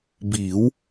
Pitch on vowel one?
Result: rising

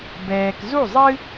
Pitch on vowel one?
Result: low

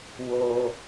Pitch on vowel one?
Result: low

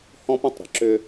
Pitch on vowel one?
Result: high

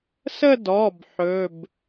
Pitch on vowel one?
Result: falling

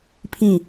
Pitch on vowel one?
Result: falling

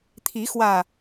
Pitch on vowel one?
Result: rising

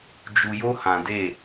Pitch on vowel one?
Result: low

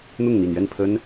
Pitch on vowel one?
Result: falling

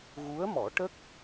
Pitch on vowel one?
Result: rising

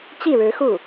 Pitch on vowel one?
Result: falling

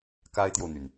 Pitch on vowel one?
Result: high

